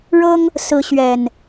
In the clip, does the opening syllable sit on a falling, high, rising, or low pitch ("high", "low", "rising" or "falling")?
high